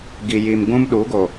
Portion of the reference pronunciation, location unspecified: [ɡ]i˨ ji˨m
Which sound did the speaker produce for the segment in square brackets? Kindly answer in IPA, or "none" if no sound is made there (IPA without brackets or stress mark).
ɡ